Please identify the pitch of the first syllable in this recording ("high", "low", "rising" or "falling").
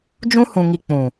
high